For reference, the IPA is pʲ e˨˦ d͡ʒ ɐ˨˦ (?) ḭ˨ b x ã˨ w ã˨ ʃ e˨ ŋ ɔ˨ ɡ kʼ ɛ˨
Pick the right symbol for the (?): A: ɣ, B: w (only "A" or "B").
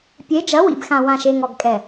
B